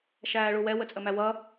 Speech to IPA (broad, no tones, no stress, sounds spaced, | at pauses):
ʃ æː ɭ u w ɛ w ə t͡sʼ ə m æ w ʌ